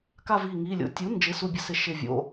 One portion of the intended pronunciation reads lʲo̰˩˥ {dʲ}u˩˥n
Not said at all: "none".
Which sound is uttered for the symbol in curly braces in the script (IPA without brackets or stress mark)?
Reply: tʲ